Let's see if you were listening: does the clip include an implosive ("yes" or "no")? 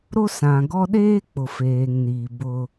yes